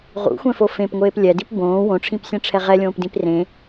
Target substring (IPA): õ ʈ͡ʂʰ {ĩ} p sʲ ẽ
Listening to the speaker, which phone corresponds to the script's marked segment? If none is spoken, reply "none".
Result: ĩ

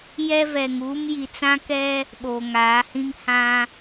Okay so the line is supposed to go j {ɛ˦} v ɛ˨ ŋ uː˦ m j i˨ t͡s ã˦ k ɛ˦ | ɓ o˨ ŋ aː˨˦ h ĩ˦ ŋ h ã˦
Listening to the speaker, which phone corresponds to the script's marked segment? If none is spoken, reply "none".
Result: ɛ˦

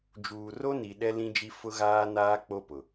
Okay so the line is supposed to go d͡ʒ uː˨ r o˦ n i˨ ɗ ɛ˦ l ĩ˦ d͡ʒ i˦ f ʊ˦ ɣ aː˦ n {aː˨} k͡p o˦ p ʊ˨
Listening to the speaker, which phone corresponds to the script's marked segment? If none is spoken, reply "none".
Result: aː˦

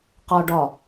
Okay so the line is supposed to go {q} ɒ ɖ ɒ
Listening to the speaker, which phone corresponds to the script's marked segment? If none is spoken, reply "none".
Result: q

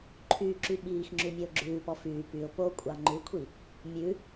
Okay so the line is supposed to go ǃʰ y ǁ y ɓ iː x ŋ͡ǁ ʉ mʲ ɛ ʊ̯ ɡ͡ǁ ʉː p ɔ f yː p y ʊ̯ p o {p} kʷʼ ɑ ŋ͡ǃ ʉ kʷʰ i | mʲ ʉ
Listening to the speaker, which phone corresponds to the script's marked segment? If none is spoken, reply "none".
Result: none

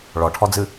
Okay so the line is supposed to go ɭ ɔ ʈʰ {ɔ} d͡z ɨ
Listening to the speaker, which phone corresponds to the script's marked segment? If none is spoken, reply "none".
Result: ɔ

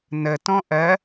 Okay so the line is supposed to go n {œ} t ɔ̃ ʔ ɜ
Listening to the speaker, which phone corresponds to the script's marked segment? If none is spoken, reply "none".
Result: ə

